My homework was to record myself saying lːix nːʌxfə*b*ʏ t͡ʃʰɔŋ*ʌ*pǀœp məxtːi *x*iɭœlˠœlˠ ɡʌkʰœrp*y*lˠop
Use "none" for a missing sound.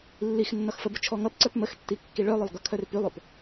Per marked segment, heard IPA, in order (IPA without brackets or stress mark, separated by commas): b, ʌ, kː, y